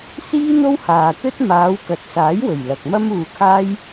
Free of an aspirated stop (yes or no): no